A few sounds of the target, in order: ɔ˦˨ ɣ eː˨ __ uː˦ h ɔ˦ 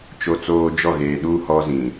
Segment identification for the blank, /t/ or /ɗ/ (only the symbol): ɗ